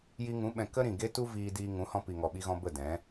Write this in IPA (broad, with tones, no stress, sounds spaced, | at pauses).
j i˧ ŋ ũ˨˦ ɓ ɛ̃˨ k ə˦ ɾ ĩ˨ ɡ e˦ t u˦ v iː˧ d iː˧ ŋ ũ˨˦ h ɔ̃˧ p i˨ ŋ ɔ˨ ɓ i˧ ɣ ɔ̃˧ b ə˦˨ d ɛ̃˨˦